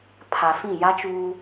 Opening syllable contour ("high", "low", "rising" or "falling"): low